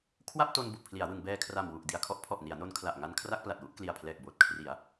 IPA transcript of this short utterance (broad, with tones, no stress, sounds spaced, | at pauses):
kʰ w a˥˩ p̚ t o˧ n b u˨˩ ʔ pʰ l i˩˦ a̯ w ɯ˩˦ ŋ b ɛː˧ kʰ r a˨˩ m w u˨˩ ʔ d i˨˩ a̯ kʰ ɔ˦˥ ʔ pʰ ɔ˨˩ ʔ n i˩˦ a̯ n o˧ n kʰ l a˨˩ ʔ ŋ a˧ n kʰ r a˥˩ k̚ p l a˨˩ t̚ w u˥˩ ʔ k l i˨˩ a̯ pʰ l ɛː˨˩ k̚ b oː˨˩ t̚ kʰ r i˩˦ a̯